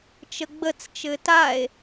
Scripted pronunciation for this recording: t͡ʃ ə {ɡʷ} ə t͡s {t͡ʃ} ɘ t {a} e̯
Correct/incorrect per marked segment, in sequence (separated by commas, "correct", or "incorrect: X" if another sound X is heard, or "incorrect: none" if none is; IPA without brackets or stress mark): incorrect: ɡ͡b, correct, correct